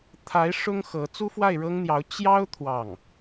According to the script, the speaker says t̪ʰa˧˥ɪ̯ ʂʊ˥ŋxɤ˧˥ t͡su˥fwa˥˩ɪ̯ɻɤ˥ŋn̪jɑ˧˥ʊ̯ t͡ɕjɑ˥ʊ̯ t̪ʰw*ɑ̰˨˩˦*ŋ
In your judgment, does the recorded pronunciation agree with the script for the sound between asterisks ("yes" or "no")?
no